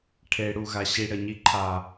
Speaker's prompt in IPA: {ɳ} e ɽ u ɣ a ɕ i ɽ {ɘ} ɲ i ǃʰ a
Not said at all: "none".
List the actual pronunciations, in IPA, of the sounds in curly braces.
ʈʰ, ɘ

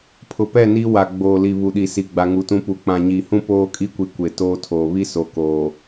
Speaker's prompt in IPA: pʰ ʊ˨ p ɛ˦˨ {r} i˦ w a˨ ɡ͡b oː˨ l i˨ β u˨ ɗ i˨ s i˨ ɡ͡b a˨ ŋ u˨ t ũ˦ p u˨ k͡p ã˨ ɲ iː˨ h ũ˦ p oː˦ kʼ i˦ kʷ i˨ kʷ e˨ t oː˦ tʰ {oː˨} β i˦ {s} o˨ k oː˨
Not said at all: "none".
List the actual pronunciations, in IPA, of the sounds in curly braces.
n, oː˨, s

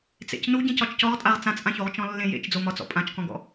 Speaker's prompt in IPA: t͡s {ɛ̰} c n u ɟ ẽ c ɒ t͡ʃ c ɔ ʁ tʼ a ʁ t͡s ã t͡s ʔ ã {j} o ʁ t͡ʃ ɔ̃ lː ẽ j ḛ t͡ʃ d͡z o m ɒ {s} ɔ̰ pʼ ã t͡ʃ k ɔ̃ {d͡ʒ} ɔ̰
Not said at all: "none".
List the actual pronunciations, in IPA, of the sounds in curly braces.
ḛ, ç, t͡s, ɡ

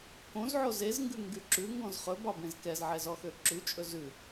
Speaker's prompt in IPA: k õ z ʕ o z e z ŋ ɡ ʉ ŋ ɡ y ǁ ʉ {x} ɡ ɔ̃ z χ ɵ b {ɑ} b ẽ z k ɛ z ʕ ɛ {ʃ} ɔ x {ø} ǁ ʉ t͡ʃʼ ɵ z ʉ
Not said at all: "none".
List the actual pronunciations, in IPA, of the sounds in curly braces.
ŋ, ɑ, z, ø

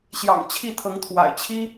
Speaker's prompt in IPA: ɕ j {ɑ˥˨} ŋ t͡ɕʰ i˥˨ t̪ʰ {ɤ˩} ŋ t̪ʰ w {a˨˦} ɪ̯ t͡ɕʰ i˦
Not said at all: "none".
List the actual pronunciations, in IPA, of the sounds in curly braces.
ɑ̰˨˩, ɤ˨˦, a̰˨˩

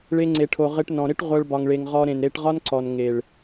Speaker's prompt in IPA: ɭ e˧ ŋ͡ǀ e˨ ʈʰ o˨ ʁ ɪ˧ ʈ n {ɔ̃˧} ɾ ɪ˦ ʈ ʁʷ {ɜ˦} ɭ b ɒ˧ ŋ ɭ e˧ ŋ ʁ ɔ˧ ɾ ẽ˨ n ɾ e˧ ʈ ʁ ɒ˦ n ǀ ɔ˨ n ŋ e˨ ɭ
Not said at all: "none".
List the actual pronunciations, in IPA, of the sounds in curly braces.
ɔ̃˨, ɜ˦

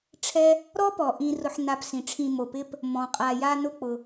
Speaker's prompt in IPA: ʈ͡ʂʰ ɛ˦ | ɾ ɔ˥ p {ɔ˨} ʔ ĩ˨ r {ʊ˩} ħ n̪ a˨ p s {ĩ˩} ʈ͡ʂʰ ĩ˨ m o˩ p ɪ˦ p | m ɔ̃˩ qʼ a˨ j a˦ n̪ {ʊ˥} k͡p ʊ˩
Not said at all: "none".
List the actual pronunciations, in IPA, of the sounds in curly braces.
ɔ˩, ʊ˨, ĩ˩, ʊ˥

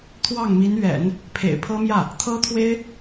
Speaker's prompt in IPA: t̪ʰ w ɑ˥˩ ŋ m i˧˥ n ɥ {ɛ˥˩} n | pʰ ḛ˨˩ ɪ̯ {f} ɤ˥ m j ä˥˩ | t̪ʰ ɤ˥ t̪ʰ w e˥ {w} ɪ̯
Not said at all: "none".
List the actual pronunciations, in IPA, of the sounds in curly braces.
ɛ̰˨˩˦, pʰ, none

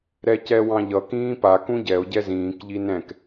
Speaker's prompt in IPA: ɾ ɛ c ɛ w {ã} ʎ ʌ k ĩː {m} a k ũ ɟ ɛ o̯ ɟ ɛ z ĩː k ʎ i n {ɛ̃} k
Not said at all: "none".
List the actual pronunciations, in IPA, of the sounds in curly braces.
ɑ̃, p, ɛ̃

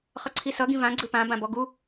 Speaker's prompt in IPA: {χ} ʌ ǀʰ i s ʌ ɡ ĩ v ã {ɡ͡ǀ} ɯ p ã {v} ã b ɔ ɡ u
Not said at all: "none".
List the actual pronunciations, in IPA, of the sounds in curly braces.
χ, ɡ͡ǀ, b

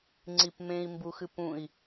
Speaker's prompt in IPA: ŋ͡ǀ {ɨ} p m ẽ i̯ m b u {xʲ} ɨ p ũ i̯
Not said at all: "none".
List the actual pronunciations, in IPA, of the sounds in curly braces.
i, x

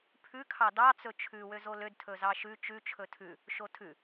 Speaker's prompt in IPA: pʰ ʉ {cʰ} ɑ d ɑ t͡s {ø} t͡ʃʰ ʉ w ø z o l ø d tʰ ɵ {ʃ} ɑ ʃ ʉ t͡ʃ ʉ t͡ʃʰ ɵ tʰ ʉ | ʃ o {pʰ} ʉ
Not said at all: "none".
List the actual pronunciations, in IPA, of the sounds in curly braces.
kʰ, ɵ, z, tʰ

